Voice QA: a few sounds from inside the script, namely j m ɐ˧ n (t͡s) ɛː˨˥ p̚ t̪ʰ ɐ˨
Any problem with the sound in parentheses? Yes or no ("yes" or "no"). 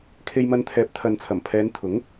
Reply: yes